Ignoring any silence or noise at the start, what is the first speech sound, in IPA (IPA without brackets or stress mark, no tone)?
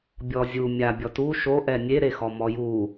bʲ